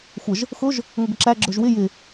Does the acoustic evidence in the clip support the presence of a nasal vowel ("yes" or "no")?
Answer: no